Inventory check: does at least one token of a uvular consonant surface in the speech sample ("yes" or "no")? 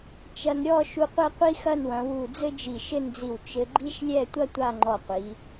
yes